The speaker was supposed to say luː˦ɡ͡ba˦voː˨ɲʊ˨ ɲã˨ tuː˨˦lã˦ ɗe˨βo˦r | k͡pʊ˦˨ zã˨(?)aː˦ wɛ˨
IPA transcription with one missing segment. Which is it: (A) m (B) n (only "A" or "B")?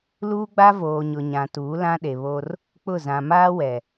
A